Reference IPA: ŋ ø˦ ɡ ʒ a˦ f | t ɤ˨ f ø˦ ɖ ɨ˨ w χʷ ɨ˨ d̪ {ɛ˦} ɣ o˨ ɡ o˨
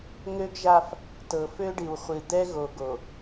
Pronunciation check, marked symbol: correct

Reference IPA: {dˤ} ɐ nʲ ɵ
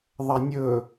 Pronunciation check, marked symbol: incorrect: ðˤ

